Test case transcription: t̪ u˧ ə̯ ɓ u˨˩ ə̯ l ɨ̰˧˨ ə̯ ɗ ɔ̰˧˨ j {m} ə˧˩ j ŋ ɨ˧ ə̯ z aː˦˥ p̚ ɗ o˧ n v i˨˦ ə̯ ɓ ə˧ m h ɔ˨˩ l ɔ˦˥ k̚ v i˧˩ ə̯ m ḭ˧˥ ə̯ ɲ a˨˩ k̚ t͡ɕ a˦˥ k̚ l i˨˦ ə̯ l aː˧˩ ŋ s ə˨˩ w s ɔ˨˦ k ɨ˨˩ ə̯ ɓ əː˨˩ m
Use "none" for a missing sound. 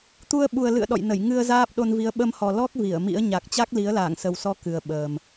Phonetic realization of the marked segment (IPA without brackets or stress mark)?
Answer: n